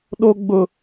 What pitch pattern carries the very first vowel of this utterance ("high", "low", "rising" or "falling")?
high